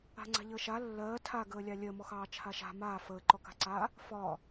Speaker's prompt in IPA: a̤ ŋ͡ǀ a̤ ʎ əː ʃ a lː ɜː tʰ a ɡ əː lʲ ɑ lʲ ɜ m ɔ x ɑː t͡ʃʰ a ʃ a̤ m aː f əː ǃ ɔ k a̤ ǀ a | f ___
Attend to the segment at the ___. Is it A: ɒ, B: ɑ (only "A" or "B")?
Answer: A